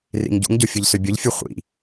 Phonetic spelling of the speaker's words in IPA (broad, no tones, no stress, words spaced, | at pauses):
rḭŋɟṵŋɟo fʲʊʎsʏbʲʊʎfʲu χʷḭ